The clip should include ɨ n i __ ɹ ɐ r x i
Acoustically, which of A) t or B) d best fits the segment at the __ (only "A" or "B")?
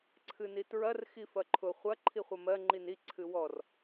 A